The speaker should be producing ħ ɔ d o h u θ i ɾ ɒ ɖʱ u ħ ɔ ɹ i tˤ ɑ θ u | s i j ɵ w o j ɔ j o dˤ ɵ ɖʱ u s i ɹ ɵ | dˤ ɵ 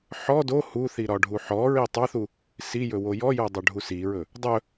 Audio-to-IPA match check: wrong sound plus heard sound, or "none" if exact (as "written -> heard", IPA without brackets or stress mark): none